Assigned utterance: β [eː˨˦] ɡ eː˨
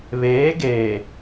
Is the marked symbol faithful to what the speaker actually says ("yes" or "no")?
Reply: yes